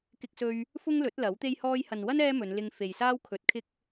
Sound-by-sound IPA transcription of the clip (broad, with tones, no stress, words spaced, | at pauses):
kɪ˧k̚sɵ˧ɥ | fʊ˥ŋlɵ˨˥t̚ lɐ˨˥wt̪e˥j hɔː˧jhɐ˨nwɐ˥n ɛː˥mɵ˨˧nlɪ˧ŋ fe˨j saː˥wkʰɵ˨˥t̚kʰɪ˥k̚